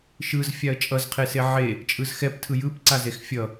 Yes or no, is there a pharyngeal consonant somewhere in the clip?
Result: yes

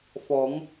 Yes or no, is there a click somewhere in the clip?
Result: no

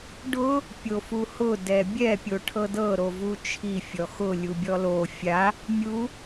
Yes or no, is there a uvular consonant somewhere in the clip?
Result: no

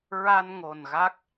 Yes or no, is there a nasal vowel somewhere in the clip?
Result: no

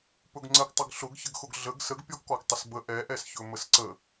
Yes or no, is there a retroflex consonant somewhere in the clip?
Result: no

